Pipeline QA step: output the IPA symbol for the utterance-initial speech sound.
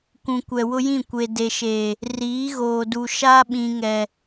kʷ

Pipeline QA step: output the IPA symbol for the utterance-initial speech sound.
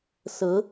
s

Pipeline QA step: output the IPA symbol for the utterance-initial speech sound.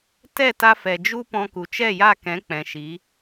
t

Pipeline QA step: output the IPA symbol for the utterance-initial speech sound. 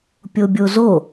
pʲ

